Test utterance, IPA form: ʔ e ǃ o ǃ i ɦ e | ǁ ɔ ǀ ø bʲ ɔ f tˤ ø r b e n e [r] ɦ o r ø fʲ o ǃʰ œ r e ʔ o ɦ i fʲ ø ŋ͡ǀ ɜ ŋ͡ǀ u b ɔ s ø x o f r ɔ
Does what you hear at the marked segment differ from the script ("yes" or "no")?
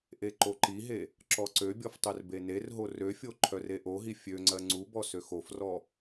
no